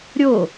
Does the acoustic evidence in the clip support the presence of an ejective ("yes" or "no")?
no